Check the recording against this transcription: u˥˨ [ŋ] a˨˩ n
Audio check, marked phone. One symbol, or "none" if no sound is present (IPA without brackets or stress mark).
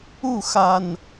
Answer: x